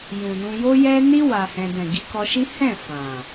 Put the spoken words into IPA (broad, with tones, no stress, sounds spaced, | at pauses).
j ũ˨ n ũ˧ j o˦ j ɛ˦ n i˦ w a˧ h ɛ̃˧ d ɛ̃˨ ɡ i˧ k ɔ˧ ʃ i˦ h ɛ̃˦˨ f ã˨